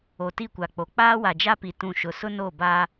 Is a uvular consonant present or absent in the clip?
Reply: absent